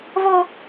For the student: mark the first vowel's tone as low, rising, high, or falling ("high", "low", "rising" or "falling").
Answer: high